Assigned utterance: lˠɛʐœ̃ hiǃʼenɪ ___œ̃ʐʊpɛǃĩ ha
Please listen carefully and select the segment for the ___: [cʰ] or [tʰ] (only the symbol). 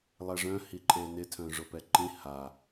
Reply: tʰ